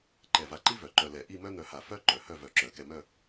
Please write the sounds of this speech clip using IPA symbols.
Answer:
ǃɛ˧˩va˧ǃi˥vœ˩˧ ǃœ˧lɛ˧˩ ʔi˥˧mœ˥n̪œ˧ha˧˩ fœ˥ ǃœ˩˧ hœ˥˧vœ˧˩ǁœ˩˧ kɛ˧mœ˥˧

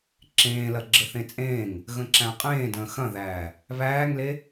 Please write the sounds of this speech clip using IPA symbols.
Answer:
ǁẽːlɐ ɡ͡ǁəθẽt͡sʼẽːŋ | ɣə̃ǁæ̃qʼẽː də̃ːxɐ̃ðæː | βæːŋle

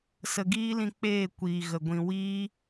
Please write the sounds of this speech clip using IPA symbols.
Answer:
sə˨ɡiː˦lĩ˧ k͡peː˦˨ kʷiː˨ɣə˨ ɡʷĩ˨ wiː˦

